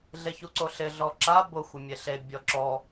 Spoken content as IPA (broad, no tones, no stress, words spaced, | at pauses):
ɮeçuǀoɬɪ ɮɔǁa bʊ xʷɪmʲeɬe bʲɔǁɔ